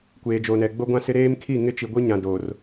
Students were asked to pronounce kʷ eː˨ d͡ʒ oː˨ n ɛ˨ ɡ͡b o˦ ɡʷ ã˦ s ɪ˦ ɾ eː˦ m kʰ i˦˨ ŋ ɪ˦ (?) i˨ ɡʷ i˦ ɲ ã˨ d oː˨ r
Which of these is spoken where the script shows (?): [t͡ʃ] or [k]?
t͡ʃ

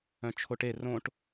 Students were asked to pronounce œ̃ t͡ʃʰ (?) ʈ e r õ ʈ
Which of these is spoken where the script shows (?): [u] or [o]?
o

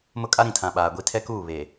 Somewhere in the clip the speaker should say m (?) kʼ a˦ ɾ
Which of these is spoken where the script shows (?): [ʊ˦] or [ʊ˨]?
ʊ˦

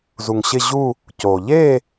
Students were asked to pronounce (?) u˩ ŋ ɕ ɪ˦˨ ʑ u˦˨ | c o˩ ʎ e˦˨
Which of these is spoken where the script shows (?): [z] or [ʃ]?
z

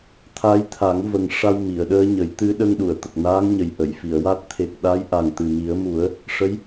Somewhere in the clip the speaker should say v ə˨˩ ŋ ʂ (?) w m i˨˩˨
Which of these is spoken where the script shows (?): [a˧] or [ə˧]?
a˧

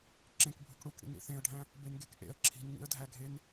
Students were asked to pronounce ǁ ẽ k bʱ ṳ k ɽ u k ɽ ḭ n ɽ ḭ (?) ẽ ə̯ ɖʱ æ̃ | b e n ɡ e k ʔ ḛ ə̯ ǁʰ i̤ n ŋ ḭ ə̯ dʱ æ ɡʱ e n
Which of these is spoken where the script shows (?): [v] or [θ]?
θ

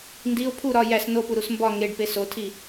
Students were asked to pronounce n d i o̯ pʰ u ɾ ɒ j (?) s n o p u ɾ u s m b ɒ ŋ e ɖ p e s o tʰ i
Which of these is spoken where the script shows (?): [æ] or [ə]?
æ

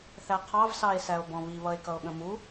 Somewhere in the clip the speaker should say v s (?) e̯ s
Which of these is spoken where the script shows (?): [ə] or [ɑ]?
ɑ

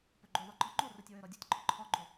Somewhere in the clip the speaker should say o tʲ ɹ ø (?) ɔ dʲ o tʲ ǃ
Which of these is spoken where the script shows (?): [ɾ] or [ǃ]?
ɾ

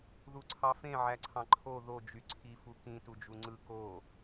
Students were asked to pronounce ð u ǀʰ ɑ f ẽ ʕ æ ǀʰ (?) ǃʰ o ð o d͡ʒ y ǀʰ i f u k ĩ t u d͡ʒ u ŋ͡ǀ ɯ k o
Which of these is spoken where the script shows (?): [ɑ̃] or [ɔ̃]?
ɑ̃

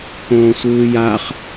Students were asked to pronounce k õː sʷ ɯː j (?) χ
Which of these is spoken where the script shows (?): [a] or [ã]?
a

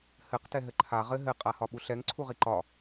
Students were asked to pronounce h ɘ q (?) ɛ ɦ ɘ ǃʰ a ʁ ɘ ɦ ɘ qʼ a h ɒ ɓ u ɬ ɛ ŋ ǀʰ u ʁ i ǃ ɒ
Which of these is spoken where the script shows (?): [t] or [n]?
t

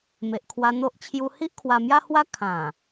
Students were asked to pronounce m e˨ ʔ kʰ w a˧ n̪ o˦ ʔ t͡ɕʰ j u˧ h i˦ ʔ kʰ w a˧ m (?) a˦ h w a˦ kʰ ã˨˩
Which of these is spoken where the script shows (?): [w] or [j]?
j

